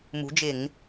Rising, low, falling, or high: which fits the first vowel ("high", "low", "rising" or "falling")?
rising